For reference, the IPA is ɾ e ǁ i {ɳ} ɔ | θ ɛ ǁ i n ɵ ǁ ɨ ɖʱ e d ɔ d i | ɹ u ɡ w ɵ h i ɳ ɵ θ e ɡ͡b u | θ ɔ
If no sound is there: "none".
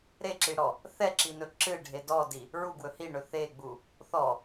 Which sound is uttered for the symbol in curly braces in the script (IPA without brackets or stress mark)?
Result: ɽ